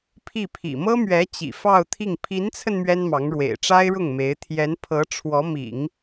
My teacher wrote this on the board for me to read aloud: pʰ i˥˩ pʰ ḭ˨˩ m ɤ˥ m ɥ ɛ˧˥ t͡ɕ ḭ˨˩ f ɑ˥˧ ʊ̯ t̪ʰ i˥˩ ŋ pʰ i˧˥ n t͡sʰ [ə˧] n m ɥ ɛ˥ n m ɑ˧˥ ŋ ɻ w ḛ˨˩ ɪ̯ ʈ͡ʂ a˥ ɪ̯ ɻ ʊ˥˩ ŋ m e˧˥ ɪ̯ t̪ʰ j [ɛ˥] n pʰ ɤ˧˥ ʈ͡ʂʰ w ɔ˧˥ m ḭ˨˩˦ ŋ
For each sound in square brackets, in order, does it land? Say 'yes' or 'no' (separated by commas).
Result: yes, no